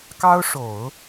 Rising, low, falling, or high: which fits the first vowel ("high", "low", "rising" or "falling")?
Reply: high